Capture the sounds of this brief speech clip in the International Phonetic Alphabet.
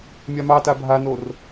mʲ a m ɑ t a bʱ a n o r

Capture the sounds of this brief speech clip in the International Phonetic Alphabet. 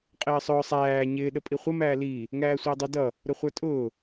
qʼ ɪː sˤ ʊː sˤ æː ɲ ɪː ɗ ə pʼ i χʷ ə m æː l iː | ŋ æː sʷ ɪː dˤ ə d ʌ | ɾ ʊ χʷ ə˞ tʼ ʊː

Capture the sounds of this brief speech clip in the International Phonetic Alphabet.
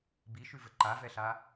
b i ʃ ʉ v ɘ ǃ a v ɛ ɬ a

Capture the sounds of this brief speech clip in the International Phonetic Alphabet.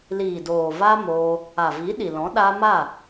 l iː˨ d oː˨ v a˦ m oː˧ | a˨ v i˨˦ ɗ i˨ l ɔ̃˨˦ ɗ a˧ m a˦˨

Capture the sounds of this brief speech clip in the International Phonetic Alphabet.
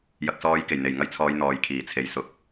j ɐ˨ k̚ s ɔː˨˧ j k e˨˩ j n̪ e˨˩ j ŋ ɐ˧ j t͡sʰ ɔː˨˧ j n̪ ɔː˨ j kʰ iː˨˩ t͡sʰ e˨˧ j s ʊ˨ k̚

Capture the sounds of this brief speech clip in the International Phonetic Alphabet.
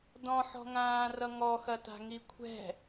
d ɔ̃ ħ ɔ̤ ŋ ãː r ʌ ŋ ɔ x ɐ t a̤ ŋ i kʷʰ ɛ̤

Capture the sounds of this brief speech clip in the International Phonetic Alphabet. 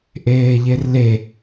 ʔ eː ʎ e r l e

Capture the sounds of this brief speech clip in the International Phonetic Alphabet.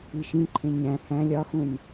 i ʃ ĩ ǃʰ ẽ ɲ æ̃ h æ̃ lʲ ɒ x ũ n

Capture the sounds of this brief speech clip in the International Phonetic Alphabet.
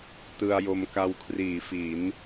t ɯ˧ a̯ j o˧ m k a˧ w kʰ r iː˩˦ f i˩˦ n

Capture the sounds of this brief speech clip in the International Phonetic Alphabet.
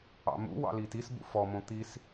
ɑ̰ m ṵ w ɑ̰ l i t i s b ṵ f ɔ m õ t̪ i s

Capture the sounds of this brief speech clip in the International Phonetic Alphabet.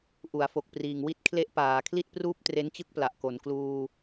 ʔ u˩˦ a̯ f o˨˩ k̚ p r iː˨˩ ŋ w i˥˩ t̚ kʰ l e˦˥ ʔ p aː˩˦ kʰ l i˥˩ t̚ p r uː˥˩ p̚ t r e˦˥ n t͡ɕ ɯ˥˩ k̚ p l a˨˩ ʔ k o˩˦ n k l uː˧

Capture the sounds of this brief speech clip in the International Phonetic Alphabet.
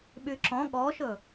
ɓ y ǁ ɔ̃ ɠ ɔ ʃ ɵ

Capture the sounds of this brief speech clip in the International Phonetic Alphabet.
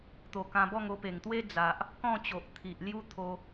t̪ o˨˩ k ã˧ b ɔ˥˧ ŋ o˧ p e˨˩ ŋ t̪ w e˦ d͡z a˨ ʔ | k ɔ̃˥˧ t͡ɕ o˨ ʔ t̪ʰ i˨ ʔ l j u˦ t̪ʰ o˧

